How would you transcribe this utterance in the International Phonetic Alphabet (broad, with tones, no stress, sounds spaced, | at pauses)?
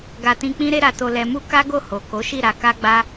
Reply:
ɡ a˧ t ĩ˧ k͡p ĩ˦ ɾ e˦ ɾ a˧ t o˧ l ɛ˧ m u˦ k a˦ ɡ o˦˨ h o˨ k o˨˦ ʃ i˦˨ ɾ a˧ k a˦ ɡ͡b a˦